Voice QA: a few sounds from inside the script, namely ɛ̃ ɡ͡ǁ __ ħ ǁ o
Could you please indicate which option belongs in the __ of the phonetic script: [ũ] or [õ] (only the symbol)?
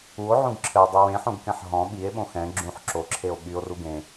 ũ